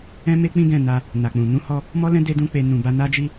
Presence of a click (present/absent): absent